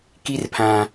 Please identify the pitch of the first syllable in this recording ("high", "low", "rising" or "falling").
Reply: high